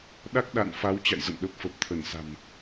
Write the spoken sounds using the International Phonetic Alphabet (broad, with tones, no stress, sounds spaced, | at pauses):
ɗ a˦˥ k̚ ɗ a̰˧˨ n f a˨˦ w t͡ɕ a̰˧˨ j z ə̰˧˨ n ɗ ə˨˩ p̚ f ə˨˩ p̚ t̪ʰ ə˧˩ n s a̤˨˩ m